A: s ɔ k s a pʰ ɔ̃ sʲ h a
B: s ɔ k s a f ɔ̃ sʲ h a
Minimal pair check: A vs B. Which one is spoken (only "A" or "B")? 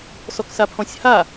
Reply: A